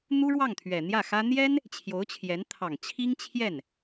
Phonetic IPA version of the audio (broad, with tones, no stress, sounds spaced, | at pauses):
n̪ u˥ ɻ w ɑ˥˩ ŋ t̪ʰ ɥ ɛ˨˩ n̪ j ä˥˩ x ä˥ n̪ j ɛ˥ n | t͡ɕʰ j o˧˥ ʊ̯ t͡ɕʰ j ɛ˧˥ n t̪ʰ ɑ˨˩ ŋ t͡ɕʰ i˥ ŋ t͡ɕʰ j ɛ˥˩ n